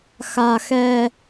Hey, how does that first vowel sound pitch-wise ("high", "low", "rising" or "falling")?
high